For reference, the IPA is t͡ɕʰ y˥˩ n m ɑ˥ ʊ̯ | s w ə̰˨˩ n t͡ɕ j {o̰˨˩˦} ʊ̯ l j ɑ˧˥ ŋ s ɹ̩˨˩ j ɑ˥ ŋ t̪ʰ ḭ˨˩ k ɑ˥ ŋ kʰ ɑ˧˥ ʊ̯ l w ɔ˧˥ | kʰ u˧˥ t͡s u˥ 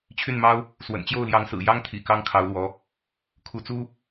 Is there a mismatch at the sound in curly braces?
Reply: yes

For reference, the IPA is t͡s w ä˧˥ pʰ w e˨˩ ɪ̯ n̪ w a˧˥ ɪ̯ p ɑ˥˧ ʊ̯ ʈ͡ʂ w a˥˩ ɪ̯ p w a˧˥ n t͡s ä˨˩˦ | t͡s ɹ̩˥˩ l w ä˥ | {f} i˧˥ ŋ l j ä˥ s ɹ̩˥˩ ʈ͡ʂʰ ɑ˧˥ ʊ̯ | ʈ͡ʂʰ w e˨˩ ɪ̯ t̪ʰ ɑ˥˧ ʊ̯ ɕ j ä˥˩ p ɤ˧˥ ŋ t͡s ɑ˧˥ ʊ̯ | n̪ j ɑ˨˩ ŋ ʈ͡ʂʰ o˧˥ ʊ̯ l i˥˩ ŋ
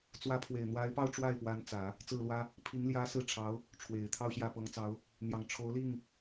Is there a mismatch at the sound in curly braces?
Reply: yes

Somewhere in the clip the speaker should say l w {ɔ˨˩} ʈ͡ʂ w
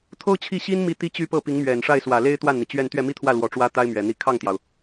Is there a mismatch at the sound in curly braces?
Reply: no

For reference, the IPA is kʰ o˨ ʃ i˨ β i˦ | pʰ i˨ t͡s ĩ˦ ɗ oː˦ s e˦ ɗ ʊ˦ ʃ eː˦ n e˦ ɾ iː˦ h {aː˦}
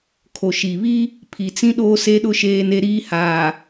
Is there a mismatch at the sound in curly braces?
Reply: yes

